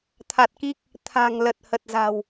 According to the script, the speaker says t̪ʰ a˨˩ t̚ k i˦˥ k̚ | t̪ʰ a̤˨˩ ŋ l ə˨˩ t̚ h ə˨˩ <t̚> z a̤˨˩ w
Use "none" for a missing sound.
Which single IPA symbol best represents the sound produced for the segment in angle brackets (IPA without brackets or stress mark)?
t̚